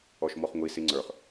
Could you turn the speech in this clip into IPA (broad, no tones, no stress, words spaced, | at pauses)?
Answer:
ɔʃmɔχŋʷi siŋ͡ǀə˞χ